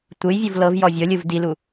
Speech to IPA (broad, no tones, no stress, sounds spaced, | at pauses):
tʷ ɯ j vʲ u v l ɤ v j ɔ vʲ ɤ lʲ ɯ v d i l u